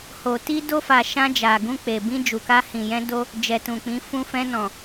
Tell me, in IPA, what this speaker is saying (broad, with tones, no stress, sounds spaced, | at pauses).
h o˨ t i˧ d o˧ f a˨ ʃ ã˧ d͡ʒ a˨ ɡ ũ˧ k͡p e˨ b ĩ˧ d͡ʒ u˨ k a˧ h ĩ˨ j ɛ̃˧ d o˧ | d͡ʒ ɛ˨ t ũ˨ k͡p ĩ˨˦ f ũ˧ f ɛ̃˧ n ɔ̃˨